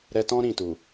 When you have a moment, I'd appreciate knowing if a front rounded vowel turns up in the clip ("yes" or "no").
no